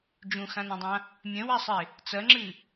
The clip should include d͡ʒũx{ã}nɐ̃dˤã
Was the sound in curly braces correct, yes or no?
yes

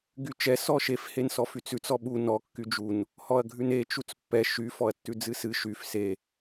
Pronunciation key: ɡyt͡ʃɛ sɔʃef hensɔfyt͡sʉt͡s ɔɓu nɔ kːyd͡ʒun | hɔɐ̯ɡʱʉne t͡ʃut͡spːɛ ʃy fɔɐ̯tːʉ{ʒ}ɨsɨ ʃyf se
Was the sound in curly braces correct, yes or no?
no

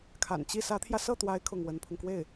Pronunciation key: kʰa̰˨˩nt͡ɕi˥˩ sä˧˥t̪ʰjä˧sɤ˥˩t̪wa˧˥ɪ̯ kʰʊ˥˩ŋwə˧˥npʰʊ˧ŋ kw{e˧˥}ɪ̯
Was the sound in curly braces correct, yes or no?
no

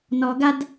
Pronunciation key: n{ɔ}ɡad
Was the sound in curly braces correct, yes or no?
yes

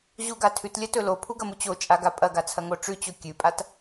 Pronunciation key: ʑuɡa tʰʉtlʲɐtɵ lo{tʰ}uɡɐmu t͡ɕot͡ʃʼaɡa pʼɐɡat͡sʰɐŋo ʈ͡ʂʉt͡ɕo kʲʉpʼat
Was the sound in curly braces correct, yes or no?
no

